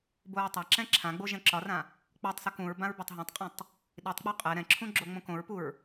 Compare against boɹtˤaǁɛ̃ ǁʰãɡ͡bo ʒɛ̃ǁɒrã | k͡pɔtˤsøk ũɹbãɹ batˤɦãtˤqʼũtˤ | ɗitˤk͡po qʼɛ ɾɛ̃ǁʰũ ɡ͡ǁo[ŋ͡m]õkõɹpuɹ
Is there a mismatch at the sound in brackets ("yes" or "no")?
no